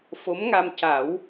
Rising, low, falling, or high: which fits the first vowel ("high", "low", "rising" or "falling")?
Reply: rising